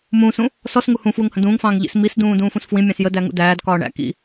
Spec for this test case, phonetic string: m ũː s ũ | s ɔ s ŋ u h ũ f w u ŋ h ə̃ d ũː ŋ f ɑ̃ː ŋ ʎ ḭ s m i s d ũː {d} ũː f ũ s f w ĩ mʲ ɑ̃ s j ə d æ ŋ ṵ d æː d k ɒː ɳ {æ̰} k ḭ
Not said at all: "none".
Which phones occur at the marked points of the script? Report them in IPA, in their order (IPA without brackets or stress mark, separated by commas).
d, æ̰